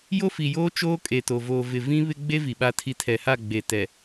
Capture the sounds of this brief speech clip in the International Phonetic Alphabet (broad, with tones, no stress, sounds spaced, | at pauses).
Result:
j o˦ f i˨ j oː˦ t͡ʃ oː˦ kʼ e˨ t o˨ v oː˨ v ɪ˨ v ĩ˦ β ɪ˦ ɡ͡b e˦ v i˨ ɓ a˦ tʰ i˦ tʰ ɛ˨ h a˦˨ ɡ͡b e˨ t ɛ˨